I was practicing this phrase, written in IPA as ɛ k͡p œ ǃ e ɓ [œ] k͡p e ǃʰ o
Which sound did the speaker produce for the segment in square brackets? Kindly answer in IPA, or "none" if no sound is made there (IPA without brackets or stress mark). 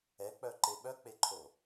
œ